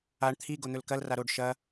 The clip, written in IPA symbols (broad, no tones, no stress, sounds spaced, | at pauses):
a ɳ t̪ʰ i ɡ o n̪ ɵ l k ɐ l r a ɾ o ɖ ʃ ɐ